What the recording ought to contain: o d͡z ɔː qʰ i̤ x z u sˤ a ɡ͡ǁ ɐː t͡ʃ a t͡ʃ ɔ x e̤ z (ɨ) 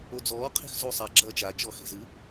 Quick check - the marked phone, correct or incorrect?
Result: correct